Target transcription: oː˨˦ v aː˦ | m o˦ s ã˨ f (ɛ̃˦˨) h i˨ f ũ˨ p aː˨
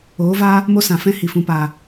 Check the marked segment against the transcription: incorrect: ɛ̃˦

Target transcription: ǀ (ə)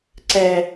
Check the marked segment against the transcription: incorrect: ɛ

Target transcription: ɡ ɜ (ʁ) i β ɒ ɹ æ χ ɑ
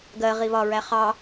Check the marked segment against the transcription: correct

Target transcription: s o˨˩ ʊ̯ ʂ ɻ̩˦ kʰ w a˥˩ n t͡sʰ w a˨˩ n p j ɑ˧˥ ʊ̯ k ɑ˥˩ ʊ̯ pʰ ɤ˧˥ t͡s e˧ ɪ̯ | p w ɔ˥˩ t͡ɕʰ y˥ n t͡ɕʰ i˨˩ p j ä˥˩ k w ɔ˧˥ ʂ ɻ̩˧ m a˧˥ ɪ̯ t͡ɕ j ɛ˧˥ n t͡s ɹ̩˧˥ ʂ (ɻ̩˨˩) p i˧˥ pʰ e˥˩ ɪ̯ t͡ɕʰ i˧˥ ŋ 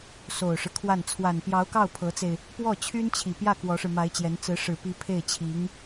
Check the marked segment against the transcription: correct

